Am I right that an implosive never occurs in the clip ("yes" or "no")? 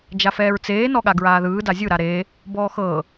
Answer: no